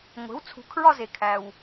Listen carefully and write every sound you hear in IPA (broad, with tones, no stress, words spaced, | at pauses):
ŋʷe̤˩˥wt͡sʰṳ˩˥kʰɹɒ˦˨ ze˩kʰæ˩w